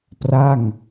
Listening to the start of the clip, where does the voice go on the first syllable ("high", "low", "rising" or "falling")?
falling